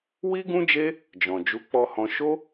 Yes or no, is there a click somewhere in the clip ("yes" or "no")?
no